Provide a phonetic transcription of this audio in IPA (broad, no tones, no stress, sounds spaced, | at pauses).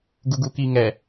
ɡ u ɡ u k i ŋ ɛ